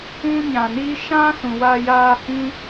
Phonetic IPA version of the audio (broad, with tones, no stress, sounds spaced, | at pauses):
ũ˧ ɲ ã˨ n iː˧ ʃ ã˦ s ũ˨ w a˧ j aː˧ h ĩ˦